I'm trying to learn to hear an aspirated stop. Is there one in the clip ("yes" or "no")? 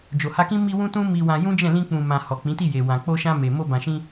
no